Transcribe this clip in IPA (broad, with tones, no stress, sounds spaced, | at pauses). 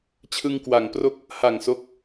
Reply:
t͡ɕʰ ɯ˧ ŋ k w a˩˦ ŋ p r o˥˩ k̚ | h a˨˩ ŋ s o˦˥ k̚